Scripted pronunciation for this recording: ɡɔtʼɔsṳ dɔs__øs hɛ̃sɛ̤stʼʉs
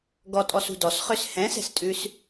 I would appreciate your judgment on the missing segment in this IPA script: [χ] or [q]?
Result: χ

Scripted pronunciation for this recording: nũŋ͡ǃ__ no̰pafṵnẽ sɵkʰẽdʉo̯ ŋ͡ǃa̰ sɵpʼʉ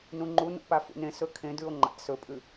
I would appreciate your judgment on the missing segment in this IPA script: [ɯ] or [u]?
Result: u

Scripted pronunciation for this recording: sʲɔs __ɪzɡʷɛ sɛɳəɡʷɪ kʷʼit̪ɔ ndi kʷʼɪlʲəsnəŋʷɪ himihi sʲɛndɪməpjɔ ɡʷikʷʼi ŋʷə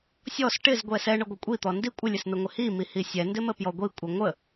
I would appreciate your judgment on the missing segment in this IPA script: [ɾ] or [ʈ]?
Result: ʈ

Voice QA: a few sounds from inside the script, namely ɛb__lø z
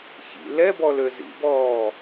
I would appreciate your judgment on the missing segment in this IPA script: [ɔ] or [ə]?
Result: ɔ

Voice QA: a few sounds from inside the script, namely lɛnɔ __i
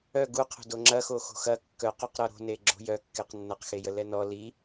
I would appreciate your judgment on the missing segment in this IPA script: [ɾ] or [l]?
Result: l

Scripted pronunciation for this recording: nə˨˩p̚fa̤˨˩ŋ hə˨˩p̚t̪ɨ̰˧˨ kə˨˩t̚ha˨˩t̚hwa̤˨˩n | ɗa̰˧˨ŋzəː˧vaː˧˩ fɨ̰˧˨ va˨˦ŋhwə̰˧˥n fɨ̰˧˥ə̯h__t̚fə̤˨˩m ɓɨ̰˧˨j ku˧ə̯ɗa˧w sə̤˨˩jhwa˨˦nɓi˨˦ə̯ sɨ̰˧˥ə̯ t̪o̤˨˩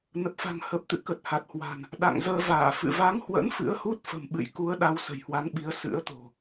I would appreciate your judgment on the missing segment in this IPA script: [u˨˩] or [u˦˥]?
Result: u˦˥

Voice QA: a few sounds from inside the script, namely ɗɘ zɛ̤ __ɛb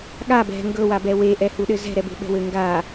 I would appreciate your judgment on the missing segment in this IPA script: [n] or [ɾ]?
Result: ɾ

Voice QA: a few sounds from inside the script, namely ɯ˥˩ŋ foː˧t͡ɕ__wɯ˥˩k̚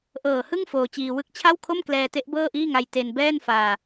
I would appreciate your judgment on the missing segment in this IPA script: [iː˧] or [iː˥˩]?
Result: iː˧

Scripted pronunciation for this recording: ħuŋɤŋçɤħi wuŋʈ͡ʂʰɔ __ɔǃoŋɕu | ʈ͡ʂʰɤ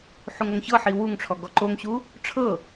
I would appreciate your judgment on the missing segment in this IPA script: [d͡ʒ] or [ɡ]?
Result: ɡ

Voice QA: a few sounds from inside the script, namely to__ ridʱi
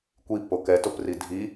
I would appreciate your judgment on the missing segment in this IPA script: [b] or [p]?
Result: p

